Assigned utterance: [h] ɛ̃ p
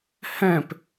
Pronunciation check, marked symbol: correct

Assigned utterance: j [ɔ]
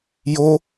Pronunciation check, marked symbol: incorrect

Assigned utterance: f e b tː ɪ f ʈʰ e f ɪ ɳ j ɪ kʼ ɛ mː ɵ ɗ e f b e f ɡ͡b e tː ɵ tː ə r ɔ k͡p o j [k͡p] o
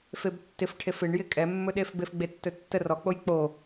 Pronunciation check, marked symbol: correct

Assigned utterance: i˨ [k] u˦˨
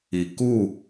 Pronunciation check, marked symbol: correct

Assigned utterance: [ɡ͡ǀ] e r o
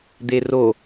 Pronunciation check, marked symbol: incorrect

